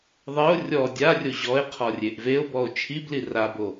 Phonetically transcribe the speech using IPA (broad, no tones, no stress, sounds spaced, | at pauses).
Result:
ðˤ e o̯ rʲ ɔ dʲ a rʲ o ʑ ɔ e̯ qʰ ɔ rʲ e ʔ v e o̯ b ɔ o̯ t͡ʃʰ i b l i r a b o